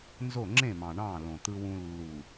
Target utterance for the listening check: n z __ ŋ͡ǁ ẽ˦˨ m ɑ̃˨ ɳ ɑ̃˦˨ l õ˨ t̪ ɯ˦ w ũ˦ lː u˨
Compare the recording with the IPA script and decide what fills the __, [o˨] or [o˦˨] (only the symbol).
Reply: o˦˨